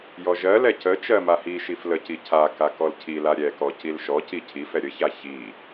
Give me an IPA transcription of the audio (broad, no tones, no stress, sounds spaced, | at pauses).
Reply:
j ɔ ʒ ɜ l ɛ c ə t͡ʃ ɜ m a h i ʃ i f l ə c i cʰ a k a k ɔ l cʰ i l a ɾʲ ɛ k ɔ c i l ʃ ɔ c i cʰ i f ɛ ɾʲ ə ç a ç i